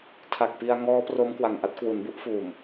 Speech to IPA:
tʰa˨˩k̚pi˧a̯ ŋɔː˦˥pro˦˥m kwa˨˩ŋʔa˥˩t̚ kwu˩˦nbu˥˩ʔfuː˨˩m

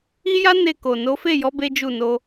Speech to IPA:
i˦ja˦ ne˦˨ko˨ no˨˦fe˦˨jɔ˨˦ be˦d͡ʒu˦˨ no˧

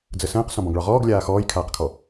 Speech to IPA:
d͡zəsə̃ːq sɔ̃bɔ̃ɡɭɒʁɔːɡ lʲaːxɔːjkʰaːqkʰɔ

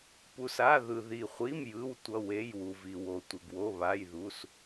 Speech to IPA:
pu˩sa˩˧˩ðɯ˩ ði˩χʷi˩˧˩m jɯ˩˧˩wtʷʌ˩˧˩we˩˧˩j wu˩vi˩ wo˩tʷe˩ɡwo˩˧˩ βa˩˧˩jðu˩˧˩s

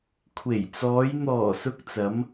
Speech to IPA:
kʷʰe˨˩jt͡sɔː˨˧j n̪ɔː˨˩sʊ˨k̚ t͡sɐ˨˧m

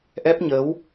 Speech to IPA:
ʔɛ˦˥p̚ɲəː˨˦w

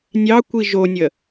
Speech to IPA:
nʲɑkʷi ʒonʲə

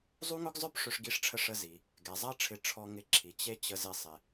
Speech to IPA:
zˤu˥ŋʊ˥ɡzˤœ˥p ʂʏ˧ʂɡi˧ʂʈ͡ʂʰə˧ ʂə˧zi˩ | ɡɛ˩zˤɐ˥ʈ͡ʂʰɪ˧ ʈ͡ʂʰɔ˧ŋɪ˧ǁʰi˩ t͡ɕe˥ t͡ɕə˧zɪ˧sˤɪ˩

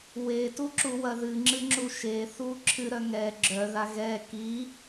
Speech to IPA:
wetuǁuwɐ ðɨŋ͡ǁɨŋ͡ǁu ʃeθu ǁʰɨɾœ ŋɛ ɡ͡ǁœða ɣɛ ki

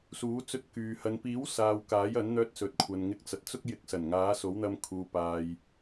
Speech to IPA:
suː˨˥t͡sɵ˧t̚kyː˨ hɐ˨npiː˨˥w saː˨w kaː˨˥jɐ˨˥nn̪œː˧t̚sɵ˨t̚ kʷʰɐ˨nŋɪ˧k̚t͡sɐ˨t̚t͡sʊ˥k̚ jɪ˨˥k̚sɐ˨˩n ŋaː˨˥so˨˥wn̪ɐ˧m kʰuː˨paː˨j

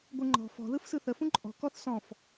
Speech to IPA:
ɡʷɯŋ͡ǃɔ̤ fɔ̤ ðɯfsɯθə fũǃʼɔ̤ kɔθsɔ̃f

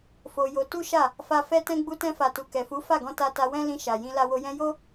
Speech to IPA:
fo˧jo˧ tu˦ʃa˦˨ | fa˧ fɛ˧tɛ̃˧ ɡ͡bu˧tɛ̃˧fa˨tu˨ kɛ˨fu˨˦ fa˦˨ɡɔ̃˧ ta˧ta˧ wɛ̃˦lĩ˧ʃa˨ jĩ˧ la˧wo˧jɛ̃˦ jo˦

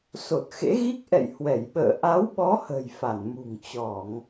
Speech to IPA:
so˨˩t̚xḛ˧˥ɣi˦˥k̚ ʔɛ̰˧˨j hwɛ˧˩jɓə̰ː˧˨ ʔa˨˦wɓɔ˨˦ hə̤˨˩j fa˧˩nmṳ˨˩ŋ t͡ɕɔ˧˩˨ŋ

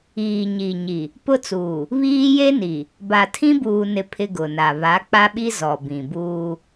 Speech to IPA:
iː˨ ɲi˨ɲi˨ | pʊ˦t͡suː˨ | βiː˦je˦ni˨ | ba˨tʰĩ˦buː˨nɪ˨ pʰɪ˦ɡʊ˨na˨ βa˨˦k͡pa˦ɓi˦ zɔ˨bĩ˨buː˦

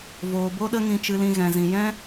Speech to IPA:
voː˨bo˧ɗə˧ ŋĩ˧t͡ʃɨ˧lĩ˧ ɣɛ̃˨zĩ˨jɛ̃˦

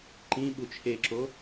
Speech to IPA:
ǃĩɓu t͡ʃʰeǁo

